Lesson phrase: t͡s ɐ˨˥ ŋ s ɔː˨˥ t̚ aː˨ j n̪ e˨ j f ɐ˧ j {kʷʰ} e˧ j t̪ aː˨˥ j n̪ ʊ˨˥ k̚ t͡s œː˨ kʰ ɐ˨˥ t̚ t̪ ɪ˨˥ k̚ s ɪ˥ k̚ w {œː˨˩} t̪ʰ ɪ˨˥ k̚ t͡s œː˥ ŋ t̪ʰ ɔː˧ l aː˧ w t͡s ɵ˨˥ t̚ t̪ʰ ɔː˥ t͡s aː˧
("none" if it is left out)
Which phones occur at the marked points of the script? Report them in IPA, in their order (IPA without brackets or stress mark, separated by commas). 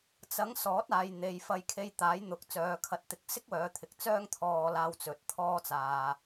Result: kʰ, œː˨˧